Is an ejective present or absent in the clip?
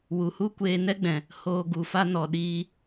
absent